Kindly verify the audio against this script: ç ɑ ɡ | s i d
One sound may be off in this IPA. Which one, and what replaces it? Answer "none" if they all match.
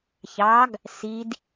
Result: none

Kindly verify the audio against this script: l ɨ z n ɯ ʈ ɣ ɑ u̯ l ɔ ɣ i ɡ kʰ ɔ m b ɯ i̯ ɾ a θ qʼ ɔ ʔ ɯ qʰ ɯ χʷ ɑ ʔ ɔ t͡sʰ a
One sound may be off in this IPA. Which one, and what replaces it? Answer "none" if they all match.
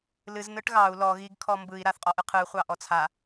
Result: none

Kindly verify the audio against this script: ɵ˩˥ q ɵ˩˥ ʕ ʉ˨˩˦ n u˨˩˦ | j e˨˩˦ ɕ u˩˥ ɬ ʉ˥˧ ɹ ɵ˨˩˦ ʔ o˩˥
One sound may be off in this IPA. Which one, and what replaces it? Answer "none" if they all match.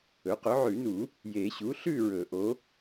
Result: none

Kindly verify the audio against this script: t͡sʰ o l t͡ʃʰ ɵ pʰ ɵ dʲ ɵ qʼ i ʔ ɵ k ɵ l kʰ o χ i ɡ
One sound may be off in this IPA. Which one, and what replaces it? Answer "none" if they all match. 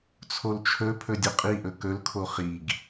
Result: none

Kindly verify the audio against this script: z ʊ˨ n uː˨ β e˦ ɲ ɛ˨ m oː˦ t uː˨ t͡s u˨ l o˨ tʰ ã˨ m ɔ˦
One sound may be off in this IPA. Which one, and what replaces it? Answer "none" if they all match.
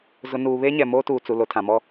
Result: none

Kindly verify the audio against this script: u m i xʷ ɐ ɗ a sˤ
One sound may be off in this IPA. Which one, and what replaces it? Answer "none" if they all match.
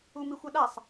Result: none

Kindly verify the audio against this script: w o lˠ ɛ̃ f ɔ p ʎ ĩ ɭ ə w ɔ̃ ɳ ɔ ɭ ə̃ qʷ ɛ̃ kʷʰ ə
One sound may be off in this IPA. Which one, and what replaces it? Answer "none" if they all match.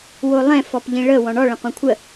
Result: none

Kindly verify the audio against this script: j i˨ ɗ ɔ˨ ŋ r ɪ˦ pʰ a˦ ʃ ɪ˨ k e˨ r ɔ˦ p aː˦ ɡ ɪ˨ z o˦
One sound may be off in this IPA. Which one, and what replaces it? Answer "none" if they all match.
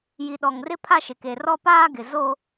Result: none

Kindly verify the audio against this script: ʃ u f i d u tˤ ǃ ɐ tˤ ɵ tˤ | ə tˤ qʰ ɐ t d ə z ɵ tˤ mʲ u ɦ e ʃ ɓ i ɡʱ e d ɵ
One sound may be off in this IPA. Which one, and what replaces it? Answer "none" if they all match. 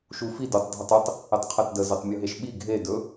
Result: ǃ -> dʱ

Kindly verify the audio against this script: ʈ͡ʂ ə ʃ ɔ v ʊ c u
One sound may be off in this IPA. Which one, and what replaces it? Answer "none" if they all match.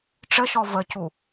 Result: ʊ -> ə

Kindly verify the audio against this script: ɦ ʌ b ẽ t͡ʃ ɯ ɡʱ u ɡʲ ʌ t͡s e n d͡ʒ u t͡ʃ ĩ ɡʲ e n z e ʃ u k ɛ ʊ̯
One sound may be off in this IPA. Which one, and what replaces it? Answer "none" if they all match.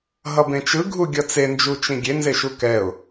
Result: none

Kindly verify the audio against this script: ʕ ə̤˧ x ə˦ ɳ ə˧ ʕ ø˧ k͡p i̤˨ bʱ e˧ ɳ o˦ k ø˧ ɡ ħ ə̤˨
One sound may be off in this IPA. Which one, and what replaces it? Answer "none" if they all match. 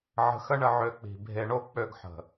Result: k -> k͡p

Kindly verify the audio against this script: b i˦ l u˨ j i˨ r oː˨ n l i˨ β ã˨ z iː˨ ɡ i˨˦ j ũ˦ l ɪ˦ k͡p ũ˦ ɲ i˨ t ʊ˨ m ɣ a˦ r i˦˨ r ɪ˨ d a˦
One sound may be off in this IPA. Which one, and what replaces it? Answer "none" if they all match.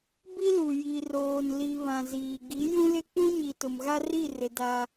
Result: none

